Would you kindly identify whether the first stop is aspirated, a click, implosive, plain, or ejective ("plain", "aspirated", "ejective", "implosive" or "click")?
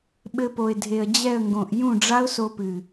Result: implosive